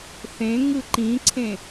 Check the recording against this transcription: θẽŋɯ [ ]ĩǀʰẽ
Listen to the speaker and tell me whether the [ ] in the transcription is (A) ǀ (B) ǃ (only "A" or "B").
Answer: B